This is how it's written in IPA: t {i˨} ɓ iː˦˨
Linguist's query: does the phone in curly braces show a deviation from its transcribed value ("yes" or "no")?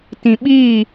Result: yes